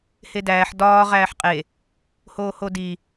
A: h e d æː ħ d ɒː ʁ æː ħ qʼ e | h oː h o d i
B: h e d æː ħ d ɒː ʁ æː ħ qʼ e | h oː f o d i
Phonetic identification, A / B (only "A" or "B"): A